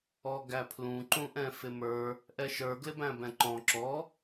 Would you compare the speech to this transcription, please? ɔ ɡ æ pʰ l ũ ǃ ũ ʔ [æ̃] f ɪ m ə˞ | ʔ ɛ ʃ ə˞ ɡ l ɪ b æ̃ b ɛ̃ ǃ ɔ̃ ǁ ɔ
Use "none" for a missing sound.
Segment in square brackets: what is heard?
ɛ̃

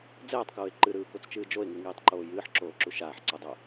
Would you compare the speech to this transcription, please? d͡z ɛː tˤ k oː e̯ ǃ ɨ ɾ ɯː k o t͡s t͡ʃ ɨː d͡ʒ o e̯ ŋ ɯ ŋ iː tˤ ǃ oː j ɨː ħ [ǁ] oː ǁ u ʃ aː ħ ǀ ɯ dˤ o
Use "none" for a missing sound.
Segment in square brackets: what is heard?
ǁ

